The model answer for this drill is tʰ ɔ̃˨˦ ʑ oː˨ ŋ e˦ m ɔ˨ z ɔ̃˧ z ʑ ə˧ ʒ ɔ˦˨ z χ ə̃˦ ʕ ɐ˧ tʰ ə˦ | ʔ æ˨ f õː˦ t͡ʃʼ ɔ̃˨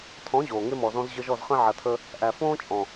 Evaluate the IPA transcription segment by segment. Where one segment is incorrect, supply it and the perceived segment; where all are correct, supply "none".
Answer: none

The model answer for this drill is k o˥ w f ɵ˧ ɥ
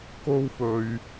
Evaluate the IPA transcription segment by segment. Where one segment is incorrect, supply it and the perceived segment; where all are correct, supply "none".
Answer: none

